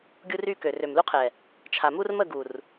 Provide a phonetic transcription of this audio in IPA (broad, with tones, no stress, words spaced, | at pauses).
ɡʲu˦ry˦kø˨ rø˨mlu˦qʰɛ˨ | t͡ʃʰa˨mu˦r mə˦˨ ɡu˨r